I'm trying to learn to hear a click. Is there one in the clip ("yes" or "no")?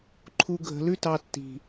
yes